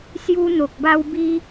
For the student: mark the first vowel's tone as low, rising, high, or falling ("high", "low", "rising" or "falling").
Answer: high